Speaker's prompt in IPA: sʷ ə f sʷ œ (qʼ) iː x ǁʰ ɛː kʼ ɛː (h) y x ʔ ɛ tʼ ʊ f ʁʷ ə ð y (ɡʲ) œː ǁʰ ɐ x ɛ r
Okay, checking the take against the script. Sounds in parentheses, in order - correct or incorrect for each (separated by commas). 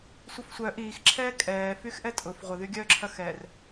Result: incorrect, incorrect, correct